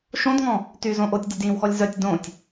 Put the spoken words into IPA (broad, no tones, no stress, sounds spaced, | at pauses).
ʃ õ d ŋ ɔ̃ | t y z õ ʔ o tʲ dʲ o d j ĩ w x ɔ lʲ z œ tʲ d õ tʲ